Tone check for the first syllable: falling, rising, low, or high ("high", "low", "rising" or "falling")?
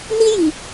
high